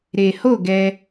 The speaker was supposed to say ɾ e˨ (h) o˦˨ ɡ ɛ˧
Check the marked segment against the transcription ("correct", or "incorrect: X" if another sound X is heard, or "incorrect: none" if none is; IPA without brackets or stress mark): correct